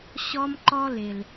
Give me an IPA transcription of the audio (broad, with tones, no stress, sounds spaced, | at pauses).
ɕ ɔ˦ m ǃ ɔ˦ l ɪ˨ l